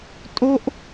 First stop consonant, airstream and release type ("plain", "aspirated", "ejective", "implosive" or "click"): ejective